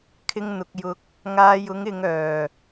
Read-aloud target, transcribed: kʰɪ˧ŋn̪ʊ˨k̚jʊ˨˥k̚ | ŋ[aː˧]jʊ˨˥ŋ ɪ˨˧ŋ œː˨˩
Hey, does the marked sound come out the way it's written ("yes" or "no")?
yes